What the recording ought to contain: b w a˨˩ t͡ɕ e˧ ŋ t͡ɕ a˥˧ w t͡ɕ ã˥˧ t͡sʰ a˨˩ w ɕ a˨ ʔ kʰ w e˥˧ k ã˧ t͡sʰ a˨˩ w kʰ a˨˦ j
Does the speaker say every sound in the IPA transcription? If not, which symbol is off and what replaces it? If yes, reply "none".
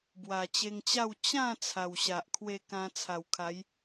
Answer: none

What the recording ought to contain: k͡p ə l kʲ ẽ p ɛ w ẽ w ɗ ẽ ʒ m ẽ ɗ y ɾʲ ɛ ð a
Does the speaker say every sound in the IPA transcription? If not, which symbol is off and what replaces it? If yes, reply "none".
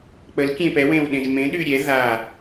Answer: none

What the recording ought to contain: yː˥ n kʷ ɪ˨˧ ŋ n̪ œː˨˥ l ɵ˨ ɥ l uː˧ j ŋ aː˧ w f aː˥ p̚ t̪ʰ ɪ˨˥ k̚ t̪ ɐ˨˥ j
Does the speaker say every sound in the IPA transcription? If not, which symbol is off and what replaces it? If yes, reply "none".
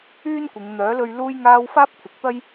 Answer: ɐ˨˥ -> ɐ˥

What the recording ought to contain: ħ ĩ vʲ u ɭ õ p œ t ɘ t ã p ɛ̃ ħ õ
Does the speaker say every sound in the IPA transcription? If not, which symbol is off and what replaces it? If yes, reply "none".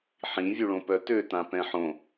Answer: ɘ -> ø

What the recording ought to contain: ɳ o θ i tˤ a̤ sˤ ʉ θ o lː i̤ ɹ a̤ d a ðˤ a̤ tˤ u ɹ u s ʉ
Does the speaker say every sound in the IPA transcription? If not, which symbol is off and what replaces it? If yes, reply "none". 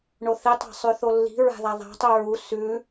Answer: d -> ð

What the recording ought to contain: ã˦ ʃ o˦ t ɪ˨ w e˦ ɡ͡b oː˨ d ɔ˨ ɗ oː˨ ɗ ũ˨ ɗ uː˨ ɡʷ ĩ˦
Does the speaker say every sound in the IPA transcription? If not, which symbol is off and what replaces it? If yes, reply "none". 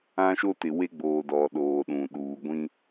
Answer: none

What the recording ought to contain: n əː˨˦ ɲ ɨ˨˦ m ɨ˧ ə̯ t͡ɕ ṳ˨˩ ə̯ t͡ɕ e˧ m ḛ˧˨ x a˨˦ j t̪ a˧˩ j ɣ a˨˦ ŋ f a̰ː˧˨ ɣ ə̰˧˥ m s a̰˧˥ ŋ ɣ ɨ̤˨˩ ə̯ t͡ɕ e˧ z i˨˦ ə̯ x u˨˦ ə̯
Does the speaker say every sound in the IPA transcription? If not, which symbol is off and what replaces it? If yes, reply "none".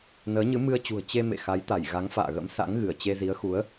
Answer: ɨ̤˨˩ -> ɨ˧˩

